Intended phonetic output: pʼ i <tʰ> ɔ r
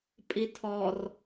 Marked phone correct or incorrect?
correct